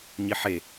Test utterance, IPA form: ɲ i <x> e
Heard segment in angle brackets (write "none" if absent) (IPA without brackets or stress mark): ħ